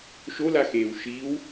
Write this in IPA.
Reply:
ʃ o l a x eː w ʃ i w

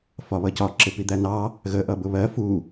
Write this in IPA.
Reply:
f ɒ β ʌ c ɒ ǁ ɪ p i d̪ æ n ɑ | ɣ ə ʔ ʌ b ʊ β ɜ f u

